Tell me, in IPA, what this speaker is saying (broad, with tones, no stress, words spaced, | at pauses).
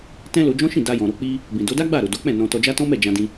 tɛ̃˦lo˧d͡ʒɔ̃˦ʃĩ˦˨ da˧jɔ̃˨ɾo˧ k͡pi˦ | bĩ˨do˨˦da˦ɡ͡ba˦˨ ɾo˨do˨˦k͡pɛ̃˦˨ nɔ̃˧tɔ˧d͡ʒa˦ tɔ̃˦mɛ˦˨d͡ʒã˧dĩ˧